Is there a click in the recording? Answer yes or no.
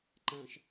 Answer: yes